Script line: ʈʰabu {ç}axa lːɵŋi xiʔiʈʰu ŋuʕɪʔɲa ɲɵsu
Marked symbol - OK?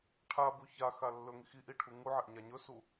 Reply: yes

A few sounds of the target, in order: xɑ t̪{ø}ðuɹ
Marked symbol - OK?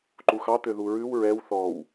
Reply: yes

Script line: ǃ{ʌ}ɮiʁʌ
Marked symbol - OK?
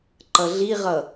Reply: yes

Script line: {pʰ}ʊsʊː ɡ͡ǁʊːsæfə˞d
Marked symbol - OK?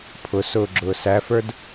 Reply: yes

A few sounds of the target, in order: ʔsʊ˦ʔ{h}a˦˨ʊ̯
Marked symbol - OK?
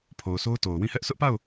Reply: no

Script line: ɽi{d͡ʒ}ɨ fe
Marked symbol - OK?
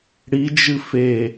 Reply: yes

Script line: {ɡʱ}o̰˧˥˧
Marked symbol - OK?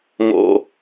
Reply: no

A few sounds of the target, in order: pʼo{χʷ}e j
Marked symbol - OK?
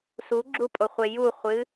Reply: yes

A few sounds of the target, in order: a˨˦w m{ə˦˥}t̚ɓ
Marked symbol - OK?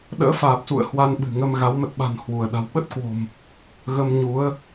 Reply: no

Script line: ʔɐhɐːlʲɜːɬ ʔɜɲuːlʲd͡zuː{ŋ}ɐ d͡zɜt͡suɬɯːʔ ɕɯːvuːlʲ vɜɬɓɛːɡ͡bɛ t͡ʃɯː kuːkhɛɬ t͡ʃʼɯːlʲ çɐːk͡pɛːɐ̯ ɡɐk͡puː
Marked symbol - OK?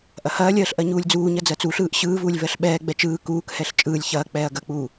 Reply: no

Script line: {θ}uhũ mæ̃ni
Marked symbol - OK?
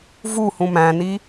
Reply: no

